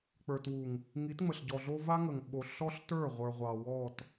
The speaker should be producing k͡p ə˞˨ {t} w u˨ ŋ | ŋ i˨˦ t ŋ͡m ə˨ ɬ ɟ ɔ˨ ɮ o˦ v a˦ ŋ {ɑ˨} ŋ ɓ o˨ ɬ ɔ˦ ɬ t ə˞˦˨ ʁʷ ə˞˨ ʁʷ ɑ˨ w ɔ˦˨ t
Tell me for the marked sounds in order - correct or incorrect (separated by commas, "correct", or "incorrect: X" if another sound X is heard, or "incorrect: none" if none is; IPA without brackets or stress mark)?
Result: correct, incorrect: ə˨